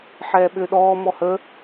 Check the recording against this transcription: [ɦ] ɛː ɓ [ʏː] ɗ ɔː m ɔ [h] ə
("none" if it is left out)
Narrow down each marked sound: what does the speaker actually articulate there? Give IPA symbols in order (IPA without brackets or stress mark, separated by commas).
ħ, ʏː, h